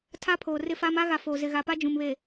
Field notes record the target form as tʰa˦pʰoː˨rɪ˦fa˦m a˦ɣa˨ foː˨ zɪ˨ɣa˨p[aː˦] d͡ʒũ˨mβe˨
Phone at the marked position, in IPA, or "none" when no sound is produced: a˦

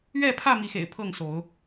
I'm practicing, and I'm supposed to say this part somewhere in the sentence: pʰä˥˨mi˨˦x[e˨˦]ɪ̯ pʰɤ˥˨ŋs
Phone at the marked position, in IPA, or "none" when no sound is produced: ḛ˨˩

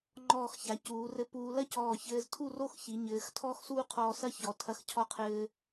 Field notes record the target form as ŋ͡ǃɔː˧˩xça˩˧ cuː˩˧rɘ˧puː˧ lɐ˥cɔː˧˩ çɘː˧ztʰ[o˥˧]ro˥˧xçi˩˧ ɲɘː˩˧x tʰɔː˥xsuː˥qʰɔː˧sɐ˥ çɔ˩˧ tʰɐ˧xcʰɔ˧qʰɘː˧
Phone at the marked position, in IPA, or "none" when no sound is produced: u˥˧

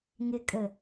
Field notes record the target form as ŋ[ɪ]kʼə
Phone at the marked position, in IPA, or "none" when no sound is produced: ɪ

